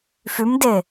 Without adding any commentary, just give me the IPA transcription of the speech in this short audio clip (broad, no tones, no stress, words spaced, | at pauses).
fymde